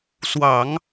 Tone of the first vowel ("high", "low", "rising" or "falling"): low